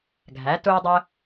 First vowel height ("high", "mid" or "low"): low